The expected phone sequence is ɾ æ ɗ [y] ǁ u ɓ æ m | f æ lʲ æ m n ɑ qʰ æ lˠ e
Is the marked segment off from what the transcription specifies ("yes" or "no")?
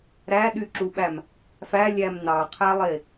no